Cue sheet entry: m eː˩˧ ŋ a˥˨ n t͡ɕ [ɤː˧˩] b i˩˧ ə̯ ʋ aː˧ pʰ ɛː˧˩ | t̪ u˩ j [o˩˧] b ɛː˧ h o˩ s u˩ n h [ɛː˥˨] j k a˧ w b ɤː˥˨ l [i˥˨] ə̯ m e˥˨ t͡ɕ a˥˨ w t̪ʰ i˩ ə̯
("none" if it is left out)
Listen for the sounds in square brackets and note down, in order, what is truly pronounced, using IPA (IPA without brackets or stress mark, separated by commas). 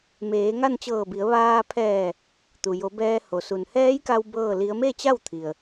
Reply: ɤː˧˩, o˩˧, ɛː˧˥, i˧˥